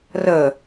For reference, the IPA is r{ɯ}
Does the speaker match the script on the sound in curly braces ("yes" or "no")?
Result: no